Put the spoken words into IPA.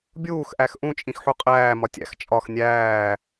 bʲ uː x ʔ æ x ʔ ũ t͡ʃʼ ĩ x ħ u qʼ æː m ɒ tʲ æ̰ x t͡ʃʼ ɒ x nʲ æː

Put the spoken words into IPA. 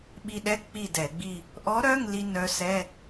ɓ i˧ ɗ ɛ˧˥˧ k͡p i˥˨ d ɛ˧˩˧ ɡ͡b i˥˨ | ʔ ɔ˧˥ ɾ œ˧˥˧ ŋ l i˧ n œ˧˥ s ɛ˧˥˧

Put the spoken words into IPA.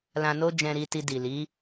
l ã˧ n o˦ d͡ʒ ɛ̃˧ ɾ i˧ t i˧ d i˨ l i˨˦

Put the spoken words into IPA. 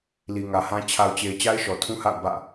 l i˨ ŋ ä˨ h ã˦ t͡ɕʰ a˨ ʊ̯ t͡ɕ e˨ ɪ̯ t͡ɕ a˦ ɪ̯ ʃ ɔ˨ tʰ ũ˦ h a̰˦˨ ʊ̯ b ä̰˦˨

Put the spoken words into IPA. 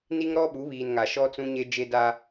n i˦ ŋ ɾ ɔ˦ ɓ u˨˦ β iː˨ n ŋ a˨ ʃ ɔ˦ t͡s ũ˦ ɲ e˦ d͡ʒ e˦ d a˦

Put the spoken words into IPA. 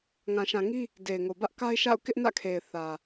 ŋ ã˨ ʃ ã˨ ŋ i˦ | d e˨ ɪ̯ ŋ o˨ b ä˦ ʔ k a˦ ɪ̯ ʃ a̰˦˨ ʊ̯ k ɪ˦ ʔ n ä̰˦˨ kʰ e˨ ɪ̯ θ ä˨

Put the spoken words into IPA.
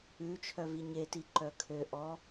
ʉ t͡ʃʰ œ v i ɲ e t i ǃ œ kʰ ø ʔ ɔ

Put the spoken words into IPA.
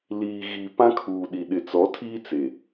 l iː˨ ɣ i˨ p ã˦ kʰ uː˨ ɗ i˨ ɗ ɪ˨ t͡s ɔ˨˦ tʰ iː˦ t͡s e˨

